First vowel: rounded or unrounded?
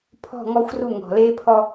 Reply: rounded